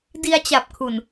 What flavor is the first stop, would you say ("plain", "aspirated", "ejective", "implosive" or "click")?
plain